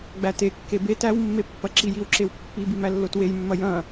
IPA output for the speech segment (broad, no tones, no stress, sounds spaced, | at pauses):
ɡ͡b æ t e kː e b e t æ w mː e pː ɐ ǁ i j i w ǁ e w pː i b i m æ lː o t w e j mː ɐ j ɐ̃